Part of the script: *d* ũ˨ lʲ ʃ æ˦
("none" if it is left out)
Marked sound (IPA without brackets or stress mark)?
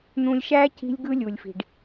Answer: n̪